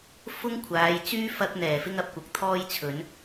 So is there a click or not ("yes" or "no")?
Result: no